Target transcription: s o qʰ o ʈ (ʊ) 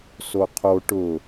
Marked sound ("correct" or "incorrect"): correct